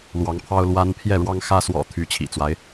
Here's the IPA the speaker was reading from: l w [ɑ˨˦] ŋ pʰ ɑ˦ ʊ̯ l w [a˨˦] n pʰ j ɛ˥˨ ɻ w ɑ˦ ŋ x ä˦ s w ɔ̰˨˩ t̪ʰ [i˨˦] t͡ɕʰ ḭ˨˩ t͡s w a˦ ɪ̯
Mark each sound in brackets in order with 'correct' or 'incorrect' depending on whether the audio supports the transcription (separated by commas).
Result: correct, incorrect, incorrect